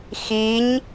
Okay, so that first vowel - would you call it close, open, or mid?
close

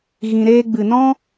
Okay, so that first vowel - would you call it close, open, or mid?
close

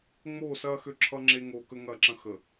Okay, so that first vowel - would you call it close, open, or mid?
mid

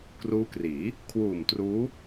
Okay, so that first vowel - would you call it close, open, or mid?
close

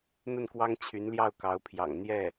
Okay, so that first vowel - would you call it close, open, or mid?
mid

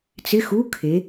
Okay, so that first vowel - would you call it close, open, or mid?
close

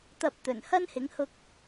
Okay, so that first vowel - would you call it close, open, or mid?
open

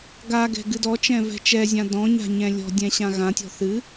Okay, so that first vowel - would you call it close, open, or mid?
open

